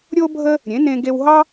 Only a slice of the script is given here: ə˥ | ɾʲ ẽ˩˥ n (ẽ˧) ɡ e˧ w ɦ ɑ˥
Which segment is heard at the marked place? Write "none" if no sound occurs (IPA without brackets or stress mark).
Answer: ẽ˧